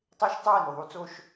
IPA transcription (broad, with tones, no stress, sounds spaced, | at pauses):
tˤ e˦ ʃ tˤ u˦ w ɘ˨ n u˨ ðˤ u˦ t͡s o˦ ʃ